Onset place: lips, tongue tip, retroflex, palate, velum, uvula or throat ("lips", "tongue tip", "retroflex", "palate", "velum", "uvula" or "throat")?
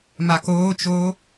lips